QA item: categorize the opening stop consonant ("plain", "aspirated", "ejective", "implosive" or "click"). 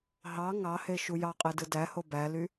ejective